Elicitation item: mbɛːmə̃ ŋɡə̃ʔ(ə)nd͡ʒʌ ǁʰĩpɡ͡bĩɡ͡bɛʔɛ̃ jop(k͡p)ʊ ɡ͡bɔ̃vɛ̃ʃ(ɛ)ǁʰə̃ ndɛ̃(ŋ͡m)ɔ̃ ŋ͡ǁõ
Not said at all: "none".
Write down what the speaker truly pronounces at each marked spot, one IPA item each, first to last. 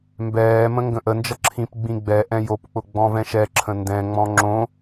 ə, k͡p, ɛ, ŋ͡m

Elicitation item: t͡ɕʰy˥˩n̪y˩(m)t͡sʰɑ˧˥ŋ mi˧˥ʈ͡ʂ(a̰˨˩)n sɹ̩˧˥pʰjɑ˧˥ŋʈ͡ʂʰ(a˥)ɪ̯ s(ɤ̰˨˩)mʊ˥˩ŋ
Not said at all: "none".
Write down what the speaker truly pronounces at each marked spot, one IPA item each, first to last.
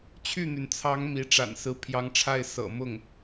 n, a̰˨˩, a˥˩, ɤ̰˨˩

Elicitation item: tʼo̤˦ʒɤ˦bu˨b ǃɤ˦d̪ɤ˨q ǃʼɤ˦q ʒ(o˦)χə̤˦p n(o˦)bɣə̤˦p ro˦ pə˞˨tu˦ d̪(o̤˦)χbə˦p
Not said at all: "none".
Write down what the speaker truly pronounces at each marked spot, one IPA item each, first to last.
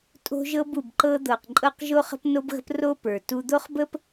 o˦, o˦, o˦

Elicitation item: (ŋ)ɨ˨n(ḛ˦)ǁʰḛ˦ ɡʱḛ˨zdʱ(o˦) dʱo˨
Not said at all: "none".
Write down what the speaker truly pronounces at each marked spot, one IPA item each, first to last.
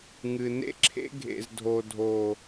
ŋ, ḛ˦, o˨

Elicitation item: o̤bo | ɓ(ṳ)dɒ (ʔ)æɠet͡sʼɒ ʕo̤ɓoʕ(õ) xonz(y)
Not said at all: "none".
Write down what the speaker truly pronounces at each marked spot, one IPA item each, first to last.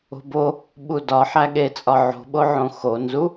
u, ħ, õ, u

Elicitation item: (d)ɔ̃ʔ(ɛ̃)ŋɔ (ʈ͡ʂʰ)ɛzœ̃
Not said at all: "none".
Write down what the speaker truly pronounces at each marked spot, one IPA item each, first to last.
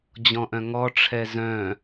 d͡ʑ, œ̃, ʈ͡ʂʰ

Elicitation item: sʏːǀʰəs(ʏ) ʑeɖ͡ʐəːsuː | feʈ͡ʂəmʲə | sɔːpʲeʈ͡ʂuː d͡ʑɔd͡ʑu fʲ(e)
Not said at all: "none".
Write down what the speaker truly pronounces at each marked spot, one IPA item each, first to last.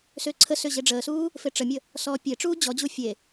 ʏ, e

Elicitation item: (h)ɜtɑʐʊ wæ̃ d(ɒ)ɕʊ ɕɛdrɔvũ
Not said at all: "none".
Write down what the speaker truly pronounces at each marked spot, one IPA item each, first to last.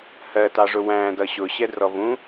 h, ʌ

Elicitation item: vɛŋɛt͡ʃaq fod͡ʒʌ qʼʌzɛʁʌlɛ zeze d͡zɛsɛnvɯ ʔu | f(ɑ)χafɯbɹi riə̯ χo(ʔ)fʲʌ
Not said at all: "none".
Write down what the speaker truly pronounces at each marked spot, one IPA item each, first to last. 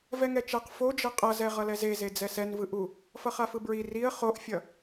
ʌ, ʔ

